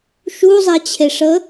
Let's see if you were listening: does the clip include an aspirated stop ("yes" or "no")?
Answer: yes